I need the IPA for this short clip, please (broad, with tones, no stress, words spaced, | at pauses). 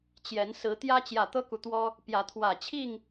t͡ɕjɛ˨˦n sɹ̩˨˦ t̪jä˦t͡ɕjä˨˩ t̪ɤ˦ku˨t̪wɔ˦ | pjä˨˦t̪ʰwä˨˩t͡ɕʰi˥˨ŋ